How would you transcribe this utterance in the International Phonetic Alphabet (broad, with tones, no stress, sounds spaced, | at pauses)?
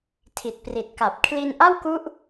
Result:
tʰ i˨˩ t̚ p r i˨˩ t̚ k a˨˩ p̚ kʰ l i˧ n ʔ a˥˩ w k u˦˥ ʔ